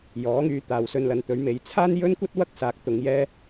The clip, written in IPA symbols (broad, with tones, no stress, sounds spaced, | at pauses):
j ɔː˨˥ ŋ yː˨˧ t̪ aː˨˧ w s ɵ˧ n l ɐ˨˧ n t̪ ɵ˨˥ ɥ m e˨˥ j t͡sʰ aː˥ n j ɵ˥ n kʷ ɐ˥ t̚ w ɐ˥ k̚ s aː˨˥ k̚ t̪ ʊ˨˧ ŋ j ɛː˥